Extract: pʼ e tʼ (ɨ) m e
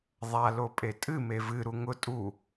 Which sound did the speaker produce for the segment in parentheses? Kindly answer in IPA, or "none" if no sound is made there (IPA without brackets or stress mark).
ɨ